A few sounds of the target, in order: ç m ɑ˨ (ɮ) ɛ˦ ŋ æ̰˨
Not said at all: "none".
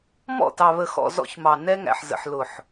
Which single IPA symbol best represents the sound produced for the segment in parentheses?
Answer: n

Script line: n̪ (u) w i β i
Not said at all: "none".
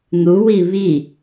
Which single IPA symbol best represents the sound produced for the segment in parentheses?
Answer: u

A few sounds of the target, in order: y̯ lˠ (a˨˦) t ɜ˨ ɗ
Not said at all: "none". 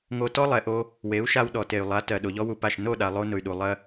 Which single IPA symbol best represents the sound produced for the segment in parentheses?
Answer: a˨˦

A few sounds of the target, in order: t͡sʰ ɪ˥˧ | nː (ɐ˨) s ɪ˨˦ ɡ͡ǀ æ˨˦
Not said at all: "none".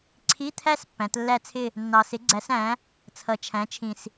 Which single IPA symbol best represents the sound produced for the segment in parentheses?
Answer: ɑ˨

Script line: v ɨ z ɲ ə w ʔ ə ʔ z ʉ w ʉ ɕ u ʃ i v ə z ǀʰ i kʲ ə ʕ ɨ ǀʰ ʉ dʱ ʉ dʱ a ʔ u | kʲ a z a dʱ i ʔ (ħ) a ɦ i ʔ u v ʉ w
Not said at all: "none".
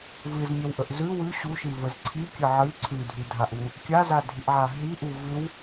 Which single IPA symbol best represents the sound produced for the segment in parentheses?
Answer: ʕ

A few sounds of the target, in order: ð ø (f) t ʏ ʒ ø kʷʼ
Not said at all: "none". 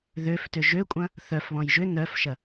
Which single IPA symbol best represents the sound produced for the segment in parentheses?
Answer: f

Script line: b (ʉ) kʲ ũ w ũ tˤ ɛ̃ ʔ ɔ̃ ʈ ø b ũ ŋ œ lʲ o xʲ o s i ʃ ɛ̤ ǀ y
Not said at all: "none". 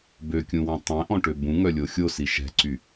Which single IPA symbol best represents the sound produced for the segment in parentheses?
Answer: ø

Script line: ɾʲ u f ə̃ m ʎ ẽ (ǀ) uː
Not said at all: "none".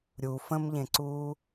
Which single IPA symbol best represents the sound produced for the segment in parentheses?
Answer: ǀ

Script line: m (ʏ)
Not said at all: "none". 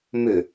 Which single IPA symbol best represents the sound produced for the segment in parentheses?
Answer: ʏ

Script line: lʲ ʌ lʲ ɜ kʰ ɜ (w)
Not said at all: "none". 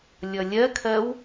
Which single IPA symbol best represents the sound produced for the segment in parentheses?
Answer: w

